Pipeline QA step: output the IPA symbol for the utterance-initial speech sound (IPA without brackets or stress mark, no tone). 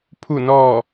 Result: pʰ